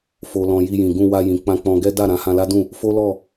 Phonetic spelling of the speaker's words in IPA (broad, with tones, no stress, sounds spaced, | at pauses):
f o˨ l ɔ̃˨ j i˧ j ĩ˨ ɡ ũ˧ w a˧ j ĩ˨ k͡p ã˧ k͡p ɔ̃˧ ɡ ɛ˦ d a˦˨ ɾ ã˨˦ h ã˧ l a˦ d ũ˦˨ | f o˦ l ɔ˦˨